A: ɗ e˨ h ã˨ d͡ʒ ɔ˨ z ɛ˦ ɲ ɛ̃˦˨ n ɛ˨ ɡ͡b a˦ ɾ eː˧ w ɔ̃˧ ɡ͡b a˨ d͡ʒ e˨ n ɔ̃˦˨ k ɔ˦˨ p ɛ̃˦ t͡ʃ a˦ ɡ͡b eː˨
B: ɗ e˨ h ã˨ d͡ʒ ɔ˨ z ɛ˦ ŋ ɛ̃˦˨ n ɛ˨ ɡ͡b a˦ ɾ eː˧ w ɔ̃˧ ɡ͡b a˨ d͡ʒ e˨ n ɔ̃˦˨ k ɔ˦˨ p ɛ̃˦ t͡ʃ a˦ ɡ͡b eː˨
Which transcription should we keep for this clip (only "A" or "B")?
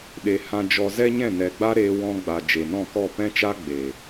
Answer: A